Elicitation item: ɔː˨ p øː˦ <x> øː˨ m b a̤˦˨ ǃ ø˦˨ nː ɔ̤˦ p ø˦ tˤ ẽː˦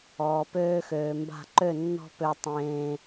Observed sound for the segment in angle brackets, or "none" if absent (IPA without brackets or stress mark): x